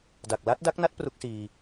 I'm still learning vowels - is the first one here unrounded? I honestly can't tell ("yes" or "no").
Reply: yes